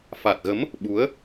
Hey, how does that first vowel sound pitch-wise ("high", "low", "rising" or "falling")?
low